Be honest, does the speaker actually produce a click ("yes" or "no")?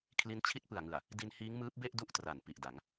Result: no